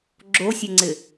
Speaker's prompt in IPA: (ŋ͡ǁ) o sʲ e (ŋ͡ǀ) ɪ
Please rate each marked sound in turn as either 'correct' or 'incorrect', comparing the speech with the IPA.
incorrect, correct

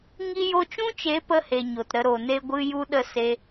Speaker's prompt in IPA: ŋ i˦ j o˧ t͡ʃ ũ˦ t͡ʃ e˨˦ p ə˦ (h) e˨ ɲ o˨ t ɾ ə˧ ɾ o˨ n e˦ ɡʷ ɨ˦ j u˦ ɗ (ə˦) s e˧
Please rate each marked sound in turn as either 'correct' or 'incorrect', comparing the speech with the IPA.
correct, correct

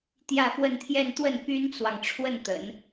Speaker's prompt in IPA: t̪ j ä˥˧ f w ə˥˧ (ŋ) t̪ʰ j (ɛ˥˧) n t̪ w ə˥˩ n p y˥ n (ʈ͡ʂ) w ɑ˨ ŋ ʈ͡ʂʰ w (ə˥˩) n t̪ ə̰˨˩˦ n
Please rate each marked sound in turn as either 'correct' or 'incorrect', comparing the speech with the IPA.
incorrect, correct, incorrect, correct

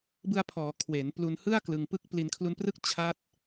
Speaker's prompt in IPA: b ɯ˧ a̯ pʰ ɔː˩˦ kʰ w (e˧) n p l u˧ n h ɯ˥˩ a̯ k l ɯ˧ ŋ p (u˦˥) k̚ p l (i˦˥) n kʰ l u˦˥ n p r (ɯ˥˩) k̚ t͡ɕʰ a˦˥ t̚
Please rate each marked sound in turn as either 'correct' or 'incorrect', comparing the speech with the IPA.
incorrect, incorrect, incorrect, correct

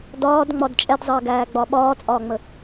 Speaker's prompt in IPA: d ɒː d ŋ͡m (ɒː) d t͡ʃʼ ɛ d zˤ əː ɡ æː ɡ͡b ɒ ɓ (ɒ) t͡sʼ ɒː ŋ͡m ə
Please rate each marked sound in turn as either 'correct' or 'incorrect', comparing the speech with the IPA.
incorrect, incorrect

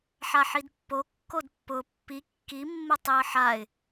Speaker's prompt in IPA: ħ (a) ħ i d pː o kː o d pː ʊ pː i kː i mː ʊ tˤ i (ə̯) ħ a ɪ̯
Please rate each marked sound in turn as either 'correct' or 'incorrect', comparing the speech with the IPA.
correct, correct

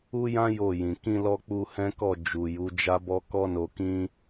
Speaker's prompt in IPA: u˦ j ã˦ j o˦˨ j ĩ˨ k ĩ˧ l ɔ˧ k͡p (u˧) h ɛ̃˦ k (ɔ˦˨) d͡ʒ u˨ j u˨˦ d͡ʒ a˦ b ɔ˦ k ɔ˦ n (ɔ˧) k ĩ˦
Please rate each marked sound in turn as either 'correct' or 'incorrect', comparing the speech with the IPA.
correct, correct, incorrect

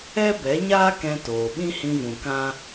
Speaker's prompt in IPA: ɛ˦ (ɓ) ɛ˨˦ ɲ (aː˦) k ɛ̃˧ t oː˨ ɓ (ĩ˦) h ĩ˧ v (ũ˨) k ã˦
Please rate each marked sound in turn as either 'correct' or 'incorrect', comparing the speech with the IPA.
incorrect, correct, correct, correct

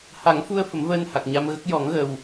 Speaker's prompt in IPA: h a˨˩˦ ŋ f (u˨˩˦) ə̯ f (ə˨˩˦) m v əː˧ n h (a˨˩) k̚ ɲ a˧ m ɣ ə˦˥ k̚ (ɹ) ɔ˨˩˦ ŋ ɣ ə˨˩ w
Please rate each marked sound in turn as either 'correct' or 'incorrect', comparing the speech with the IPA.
incorrect, correct, correct, incorrect

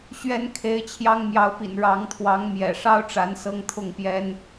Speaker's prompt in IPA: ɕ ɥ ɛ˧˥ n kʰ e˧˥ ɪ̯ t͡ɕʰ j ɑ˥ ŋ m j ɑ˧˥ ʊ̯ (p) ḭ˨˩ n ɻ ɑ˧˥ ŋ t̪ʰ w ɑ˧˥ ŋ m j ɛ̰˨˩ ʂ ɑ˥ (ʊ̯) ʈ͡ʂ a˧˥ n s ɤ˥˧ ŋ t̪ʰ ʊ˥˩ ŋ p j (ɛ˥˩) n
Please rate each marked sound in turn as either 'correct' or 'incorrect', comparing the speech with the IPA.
correct, correct, incorrect

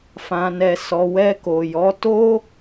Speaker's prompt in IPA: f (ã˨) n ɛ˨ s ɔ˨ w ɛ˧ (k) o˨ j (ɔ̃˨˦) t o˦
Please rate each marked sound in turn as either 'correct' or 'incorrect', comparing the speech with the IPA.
correct, correct, incorrect

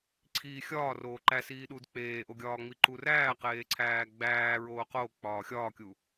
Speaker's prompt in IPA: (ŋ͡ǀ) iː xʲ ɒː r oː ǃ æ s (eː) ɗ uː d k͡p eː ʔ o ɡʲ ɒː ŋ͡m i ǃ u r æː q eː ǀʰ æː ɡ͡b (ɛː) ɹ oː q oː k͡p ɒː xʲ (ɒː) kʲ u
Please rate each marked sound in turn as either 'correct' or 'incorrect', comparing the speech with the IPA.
incorrect, incorrect, incorrect, correct

